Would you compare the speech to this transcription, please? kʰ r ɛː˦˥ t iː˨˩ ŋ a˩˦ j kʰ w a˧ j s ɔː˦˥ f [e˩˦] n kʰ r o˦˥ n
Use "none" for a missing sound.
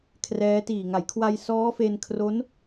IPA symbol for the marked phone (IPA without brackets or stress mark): e˧